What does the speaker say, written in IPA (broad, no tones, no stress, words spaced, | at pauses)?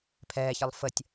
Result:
pʰɛːçəlˠ fətʲ